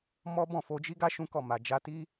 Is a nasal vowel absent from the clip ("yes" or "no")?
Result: no